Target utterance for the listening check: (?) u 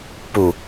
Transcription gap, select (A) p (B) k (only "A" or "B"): A